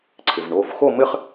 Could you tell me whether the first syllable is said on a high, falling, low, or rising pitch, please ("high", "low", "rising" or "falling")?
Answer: low